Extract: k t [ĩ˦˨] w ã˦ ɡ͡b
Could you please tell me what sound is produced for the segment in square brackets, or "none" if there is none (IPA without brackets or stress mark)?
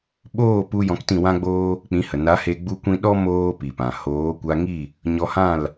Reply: ĩ˦˨